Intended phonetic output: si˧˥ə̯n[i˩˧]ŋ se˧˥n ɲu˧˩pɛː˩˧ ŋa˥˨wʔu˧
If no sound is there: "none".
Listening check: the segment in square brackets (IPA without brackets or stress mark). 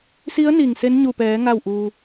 i˧˩